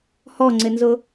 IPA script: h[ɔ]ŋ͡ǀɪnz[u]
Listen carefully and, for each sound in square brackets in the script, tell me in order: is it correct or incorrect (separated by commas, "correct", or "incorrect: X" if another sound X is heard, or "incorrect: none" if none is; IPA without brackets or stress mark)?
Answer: correct, incorrect: ʊ